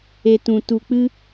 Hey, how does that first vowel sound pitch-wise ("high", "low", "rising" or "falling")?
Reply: low